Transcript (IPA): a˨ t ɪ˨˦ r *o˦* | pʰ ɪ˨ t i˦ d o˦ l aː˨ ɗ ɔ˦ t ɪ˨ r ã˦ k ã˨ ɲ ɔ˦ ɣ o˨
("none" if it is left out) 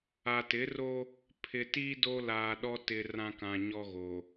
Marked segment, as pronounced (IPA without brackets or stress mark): o˦